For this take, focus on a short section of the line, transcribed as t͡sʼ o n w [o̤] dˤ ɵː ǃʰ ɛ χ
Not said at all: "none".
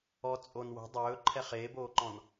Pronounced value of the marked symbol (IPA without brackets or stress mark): o̤